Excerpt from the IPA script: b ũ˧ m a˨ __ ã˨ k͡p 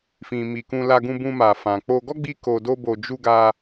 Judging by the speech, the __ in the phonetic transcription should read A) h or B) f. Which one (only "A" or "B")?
B